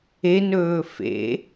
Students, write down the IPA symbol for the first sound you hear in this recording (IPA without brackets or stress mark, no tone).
e